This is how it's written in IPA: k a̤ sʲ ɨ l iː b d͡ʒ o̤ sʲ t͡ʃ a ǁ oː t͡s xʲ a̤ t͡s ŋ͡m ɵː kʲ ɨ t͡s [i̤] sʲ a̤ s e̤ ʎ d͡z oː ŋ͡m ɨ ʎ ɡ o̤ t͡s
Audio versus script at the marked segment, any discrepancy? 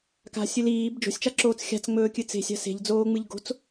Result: yes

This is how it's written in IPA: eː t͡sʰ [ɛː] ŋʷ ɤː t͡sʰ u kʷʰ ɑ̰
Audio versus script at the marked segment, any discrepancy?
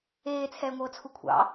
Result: no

